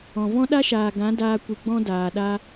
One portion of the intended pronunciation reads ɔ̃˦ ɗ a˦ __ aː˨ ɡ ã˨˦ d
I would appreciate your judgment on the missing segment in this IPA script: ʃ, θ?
ʃ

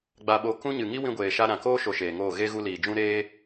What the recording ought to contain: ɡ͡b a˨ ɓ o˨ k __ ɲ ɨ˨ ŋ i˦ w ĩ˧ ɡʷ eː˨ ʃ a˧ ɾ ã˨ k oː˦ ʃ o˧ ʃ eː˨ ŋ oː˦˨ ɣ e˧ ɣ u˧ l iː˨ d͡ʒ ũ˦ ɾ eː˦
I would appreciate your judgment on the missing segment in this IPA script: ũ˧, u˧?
ũ˧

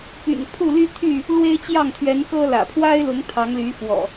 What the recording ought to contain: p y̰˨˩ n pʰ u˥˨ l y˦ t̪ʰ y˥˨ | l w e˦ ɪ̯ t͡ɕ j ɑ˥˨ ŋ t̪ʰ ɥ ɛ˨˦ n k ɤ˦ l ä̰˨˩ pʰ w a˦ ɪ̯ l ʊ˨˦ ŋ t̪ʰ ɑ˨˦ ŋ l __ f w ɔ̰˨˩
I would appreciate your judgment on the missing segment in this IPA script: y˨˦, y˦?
y˨˦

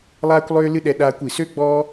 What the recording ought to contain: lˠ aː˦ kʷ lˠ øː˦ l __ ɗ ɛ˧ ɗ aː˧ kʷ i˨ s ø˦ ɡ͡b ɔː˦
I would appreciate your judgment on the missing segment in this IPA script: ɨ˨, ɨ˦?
ɨ˦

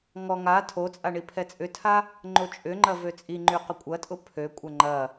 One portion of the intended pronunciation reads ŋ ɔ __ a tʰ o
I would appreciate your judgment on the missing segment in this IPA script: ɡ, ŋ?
ŋ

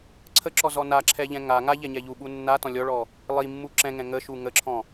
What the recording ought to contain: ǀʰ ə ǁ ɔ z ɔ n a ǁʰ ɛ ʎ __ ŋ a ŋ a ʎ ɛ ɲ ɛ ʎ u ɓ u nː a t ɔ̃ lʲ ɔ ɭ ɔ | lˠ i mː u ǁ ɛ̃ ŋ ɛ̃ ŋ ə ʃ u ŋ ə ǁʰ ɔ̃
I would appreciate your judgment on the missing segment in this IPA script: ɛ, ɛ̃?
ɛ̃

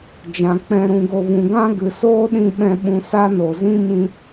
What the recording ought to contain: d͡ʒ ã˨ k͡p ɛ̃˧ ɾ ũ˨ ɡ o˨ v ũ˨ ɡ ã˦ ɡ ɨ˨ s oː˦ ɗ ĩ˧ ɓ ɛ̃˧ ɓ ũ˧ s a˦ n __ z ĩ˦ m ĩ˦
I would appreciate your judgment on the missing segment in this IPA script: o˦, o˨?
o˨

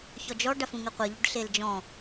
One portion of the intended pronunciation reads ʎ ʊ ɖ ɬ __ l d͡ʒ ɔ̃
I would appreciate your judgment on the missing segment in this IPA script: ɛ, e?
e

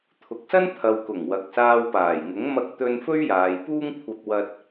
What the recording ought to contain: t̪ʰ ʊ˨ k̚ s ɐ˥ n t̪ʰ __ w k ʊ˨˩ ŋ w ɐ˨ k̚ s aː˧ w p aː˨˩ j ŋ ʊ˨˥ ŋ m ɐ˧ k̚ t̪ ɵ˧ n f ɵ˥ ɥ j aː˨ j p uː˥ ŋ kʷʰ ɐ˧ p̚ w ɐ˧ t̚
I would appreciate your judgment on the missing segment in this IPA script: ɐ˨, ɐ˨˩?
ɐ˨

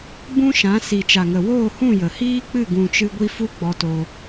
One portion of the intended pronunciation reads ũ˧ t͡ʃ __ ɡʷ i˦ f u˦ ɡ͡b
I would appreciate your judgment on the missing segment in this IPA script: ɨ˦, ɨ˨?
ɨ˦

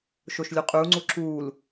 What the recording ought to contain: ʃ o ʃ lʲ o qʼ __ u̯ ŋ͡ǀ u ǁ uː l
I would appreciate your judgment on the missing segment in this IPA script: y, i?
y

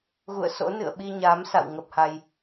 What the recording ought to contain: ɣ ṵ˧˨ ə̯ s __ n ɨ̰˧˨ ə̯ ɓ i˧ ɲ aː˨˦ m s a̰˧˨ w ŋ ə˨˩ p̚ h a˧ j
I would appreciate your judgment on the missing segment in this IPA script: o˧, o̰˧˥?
o̰˧˥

